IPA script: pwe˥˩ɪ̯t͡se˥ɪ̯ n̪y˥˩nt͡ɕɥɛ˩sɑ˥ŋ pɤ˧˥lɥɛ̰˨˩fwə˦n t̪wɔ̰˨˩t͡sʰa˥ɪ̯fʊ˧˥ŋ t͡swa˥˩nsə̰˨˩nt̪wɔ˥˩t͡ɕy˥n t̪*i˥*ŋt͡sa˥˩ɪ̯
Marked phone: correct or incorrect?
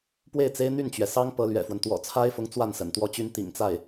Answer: incorrect